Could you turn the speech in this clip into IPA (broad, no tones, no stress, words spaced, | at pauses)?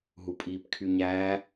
ɦupʼiːpkʰyɲæː